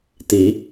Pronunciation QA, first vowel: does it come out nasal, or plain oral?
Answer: oral